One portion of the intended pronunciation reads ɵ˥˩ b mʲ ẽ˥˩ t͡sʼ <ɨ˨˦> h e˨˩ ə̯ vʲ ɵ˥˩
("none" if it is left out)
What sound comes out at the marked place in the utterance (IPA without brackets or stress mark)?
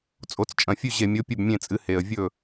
ɨ˨˦